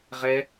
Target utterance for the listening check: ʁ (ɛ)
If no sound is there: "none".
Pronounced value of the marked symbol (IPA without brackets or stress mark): ɛ